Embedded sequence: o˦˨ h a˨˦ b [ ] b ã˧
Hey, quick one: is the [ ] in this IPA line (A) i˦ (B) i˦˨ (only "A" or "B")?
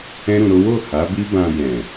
A